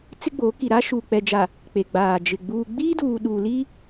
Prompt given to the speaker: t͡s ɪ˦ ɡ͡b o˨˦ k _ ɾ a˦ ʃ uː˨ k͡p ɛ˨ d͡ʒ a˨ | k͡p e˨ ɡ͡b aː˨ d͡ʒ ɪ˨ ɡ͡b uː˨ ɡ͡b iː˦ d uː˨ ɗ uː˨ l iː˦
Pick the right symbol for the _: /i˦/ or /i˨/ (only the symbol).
i˨